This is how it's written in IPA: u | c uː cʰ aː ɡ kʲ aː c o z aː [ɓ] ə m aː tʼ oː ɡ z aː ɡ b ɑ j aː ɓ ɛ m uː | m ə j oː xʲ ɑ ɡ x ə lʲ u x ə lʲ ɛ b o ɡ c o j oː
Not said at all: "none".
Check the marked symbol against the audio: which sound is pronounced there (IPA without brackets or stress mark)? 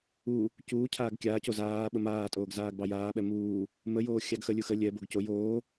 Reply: ɓ